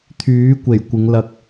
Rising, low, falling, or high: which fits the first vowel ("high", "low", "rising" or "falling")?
rising